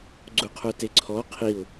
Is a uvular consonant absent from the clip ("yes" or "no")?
no